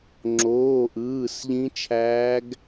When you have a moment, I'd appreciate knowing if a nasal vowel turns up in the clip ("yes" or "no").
yes